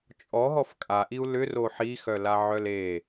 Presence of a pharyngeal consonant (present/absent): present